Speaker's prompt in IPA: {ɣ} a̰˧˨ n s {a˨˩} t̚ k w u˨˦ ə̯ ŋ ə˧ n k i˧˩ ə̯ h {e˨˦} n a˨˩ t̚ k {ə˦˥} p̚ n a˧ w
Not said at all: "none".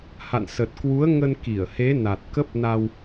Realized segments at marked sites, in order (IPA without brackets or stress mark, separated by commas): h, ə˨˩, e˨˦, ə˦˥